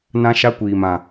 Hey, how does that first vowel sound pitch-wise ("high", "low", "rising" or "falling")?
high